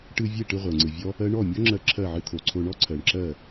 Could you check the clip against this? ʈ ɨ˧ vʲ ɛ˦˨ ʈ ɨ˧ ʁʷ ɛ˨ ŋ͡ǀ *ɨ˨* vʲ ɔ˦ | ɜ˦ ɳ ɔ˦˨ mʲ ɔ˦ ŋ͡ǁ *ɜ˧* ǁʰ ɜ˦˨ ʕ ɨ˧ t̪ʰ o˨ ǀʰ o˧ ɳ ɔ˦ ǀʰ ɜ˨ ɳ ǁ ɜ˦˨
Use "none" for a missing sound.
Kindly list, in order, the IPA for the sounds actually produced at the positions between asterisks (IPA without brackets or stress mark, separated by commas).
ɨ˨, ɜ˧